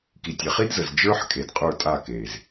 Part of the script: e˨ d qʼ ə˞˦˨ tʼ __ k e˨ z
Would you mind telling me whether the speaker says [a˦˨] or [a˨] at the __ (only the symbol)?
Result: a˦˨